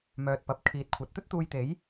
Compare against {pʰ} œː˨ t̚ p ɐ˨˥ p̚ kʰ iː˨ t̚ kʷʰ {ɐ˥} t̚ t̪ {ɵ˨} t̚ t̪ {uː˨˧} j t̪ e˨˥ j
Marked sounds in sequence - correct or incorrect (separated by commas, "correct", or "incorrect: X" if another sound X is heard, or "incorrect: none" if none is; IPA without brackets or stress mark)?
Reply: incorrect: m, incorrect: ɐ˨˥, incorrect: ɵ˥, incorrect: uː˧